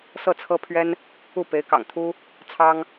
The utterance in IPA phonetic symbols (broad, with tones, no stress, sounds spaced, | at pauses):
s ɤ˥˩ t͡sʰ ɤ˥ pʰ ɥ ɛ˥ n | u˥˩ p e˧˥ ɪ̯ k ɑ̰˨˩ ŋ t̪ʰ u˥ | t͡sʰ ɑ˥ ŋ